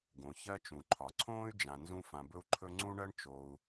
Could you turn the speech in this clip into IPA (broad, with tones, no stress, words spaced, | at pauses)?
ɡõ˩ çɜ˦t͡ʃũ˩ǃʰɒ˩ǀʰõː˥y̯ d͡ʒã˨nzũ˦ fã˨bɵ˦u̯ǃʰɵ˦ ŋ͡ǀũ˦ɳɜ˦ɳ t͡ʃo˨u̯